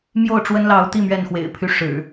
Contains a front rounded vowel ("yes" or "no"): yes